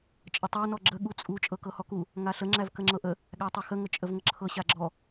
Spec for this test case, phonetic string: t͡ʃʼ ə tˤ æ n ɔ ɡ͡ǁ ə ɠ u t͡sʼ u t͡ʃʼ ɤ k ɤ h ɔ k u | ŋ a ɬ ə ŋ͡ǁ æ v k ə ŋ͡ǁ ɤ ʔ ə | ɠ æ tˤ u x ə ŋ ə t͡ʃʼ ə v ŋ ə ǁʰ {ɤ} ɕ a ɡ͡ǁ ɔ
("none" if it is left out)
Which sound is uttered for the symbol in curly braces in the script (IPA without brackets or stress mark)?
ɤ